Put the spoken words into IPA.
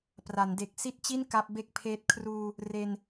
p r a˩˦ n d e˨˩ k̚ s i˦˥ t̚ t͡ɕ i˥˩ n k a˦˥ p̚ b e˥˩ k̚ pʰ eː˦˥ t̚ kʰ r uː˧ | r e˧ n

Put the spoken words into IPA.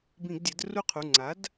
b ĩ˧˩˧ ɡ dʲ ɜ˩˥ d r u˦˨ qʰ u˩˧˩ ŋ͡ǀ a˩˥ d

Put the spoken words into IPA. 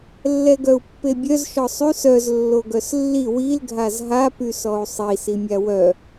lː ɛ ɡ œ u̯ pː e bʲ œ z ʃ ɔ sˤ y s œ z lː o ɡ œ s lː i w i l ɡʱ a z ɦ a p y s ɔ u̯ sˤ i s i mʲ a w œ

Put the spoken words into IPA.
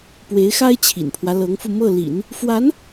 p w e˧˥ ɪ̯ x a˥ ɪ̯ t͡ɕʰ ḭ˨˩ n pʰ w ä˦ l ɤ˧˥ ŋ f u˧ m ɤ˥˩ l ḭ˨˩˦ n | f w a˧˥ n

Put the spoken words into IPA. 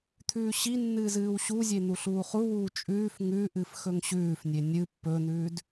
t̪ʰ ʉː ɕ i nː ɨː z ɨː w ɕ u zʲ e n̪ u ɬ uː χ u w uː t͡ʃʼ ʉː f ŋ ʉ ʔ ɨ f x ɵ ŋ ɕ ʉː f nʲ e nʲ ɨ pː ɵ n̪ ʉː d

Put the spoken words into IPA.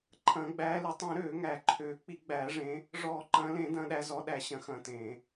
ǃʰ ɐ̃ː˨˩˦ ɡ͡b æː˨˦ l i˨˩˦ tˤ ẽ˨˩˦ ɾ øː˨˩˦ ŋ æ˨˩˦ ǃʰ øː˨˩˦ k͡p i˨˩˦ ɡ͡b æː˨˩˦ ʐ ẽ˨˦ | ʐ ɔː˨˩˦ ǃ ɐ̃ː˨˦ l ẽ˨˩˦ d ɐ̃ː˨˦ ɗ æ˨˦ z ɔ˨˦ ɗ æ˨˩˦ ɕ ɐ̃˨˩˦ x ɐ̃ː˨˦ t ẽː˨˩˦

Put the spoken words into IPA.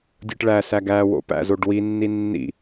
dʲ ɯ ʈ ɭ æ s æ ɡ æ w o̰ p æ̰ z o ɖ w i nː i nː ḭ

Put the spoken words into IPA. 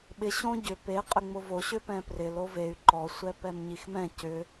ɓ ɪ ɕ õ ɟ ʏ p e qʼ ʏ ŋ͡m ʊ v o ɕ ʏ p ɛ̃ p r ɪ l o v e y̯ ǃ ɔ sʷ ɛ p ɛ m ɲ i x m ɛ̃ c ʏ

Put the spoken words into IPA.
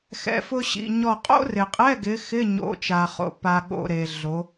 x ɛ̰˧˥˧ f ʊ˥ ɕ ḭ˧˥˧ ɲ ɔ˥˨ qʼ o̰˥ r ɪ˨ qʼ ɛ˧˥˧ ɡ ɪ˨˦ x ɪ˧˥˧ ɲ o̰˨˦ t͡ʃ a˨ χ o̰˨ p a˨ ɠ o̰˨ ɾ e˨ ɮ o˨˦

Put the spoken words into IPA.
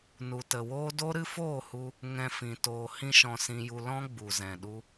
n u˨ t ə˨ w oː˦ d o˦ ɾ ɨ˦ f oː˦˨ h u˧ | ŋ ɛ̃˧ f ĩ˨ t oː˨ h ĩ˦ ʃ ɔ̃˧ s ĩ˧ j u˧ l ɔ̃˦ ɡ͡b u˨ z ɛ̃˨ ɗ u˧

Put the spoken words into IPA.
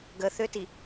ɡ ə θ ʏ t i

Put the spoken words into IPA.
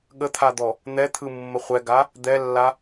ɠ ə t̪ʰ a d̪ ɔ | n̪ ɛ t̪ʰ ɯ mː ə χʷ ɛ ɡ a | d̪ ɛ lː a

